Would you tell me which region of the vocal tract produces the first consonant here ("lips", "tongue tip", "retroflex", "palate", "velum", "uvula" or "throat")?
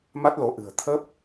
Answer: lips